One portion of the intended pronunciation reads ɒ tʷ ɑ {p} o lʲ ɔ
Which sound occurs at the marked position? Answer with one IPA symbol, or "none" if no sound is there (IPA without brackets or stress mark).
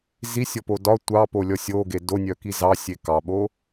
p